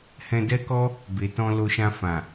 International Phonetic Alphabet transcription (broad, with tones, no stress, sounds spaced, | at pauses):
h ɛ̃˧ d ɛ˦ k ɔ˦ | b e˨ t ɔ̃˧ l o˧ ʃ ã˧ f ã˨